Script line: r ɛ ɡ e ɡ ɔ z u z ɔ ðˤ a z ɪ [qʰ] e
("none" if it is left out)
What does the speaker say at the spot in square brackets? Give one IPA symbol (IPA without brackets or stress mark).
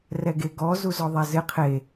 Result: qʰ